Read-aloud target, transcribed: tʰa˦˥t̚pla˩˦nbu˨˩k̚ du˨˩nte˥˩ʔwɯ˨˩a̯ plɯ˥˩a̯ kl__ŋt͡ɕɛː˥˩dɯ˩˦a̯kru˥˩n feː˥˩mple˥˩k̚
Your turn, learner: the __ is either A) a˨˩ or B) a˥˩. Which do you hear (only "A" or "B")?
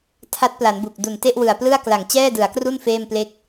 A